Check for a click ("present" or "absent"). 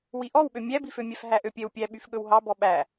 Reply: absent